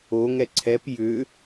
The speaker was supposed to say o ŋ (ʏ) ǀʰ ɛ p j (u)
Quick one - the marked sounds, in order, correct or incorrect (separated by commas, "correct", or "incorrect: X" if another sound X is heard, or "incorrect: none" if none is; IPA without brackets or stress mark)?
incorrect: ɛ, incorrect: ʏ